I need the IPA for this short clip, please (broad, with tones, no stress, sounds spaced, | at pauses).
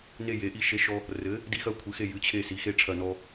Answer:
n e˦˨ j e˩˥ ʔ i˦˨ ʃ e˦ ʃ ɔ˦ | r ɘ˩˥ | d i˦ x ɐ˦ kʷʰ ɨ˩˥ x e˦˨ j ɨ˩˥ t͡ɕʰ e˦˨ s i˩˥ x e˦ ʈ͡ʂʰ ɐ˦˨ n ɔ˦